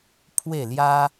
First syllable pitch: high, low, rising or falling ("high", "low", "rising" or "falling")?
falling